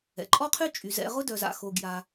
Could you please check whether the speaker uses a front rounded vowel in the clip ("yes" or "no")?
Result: yes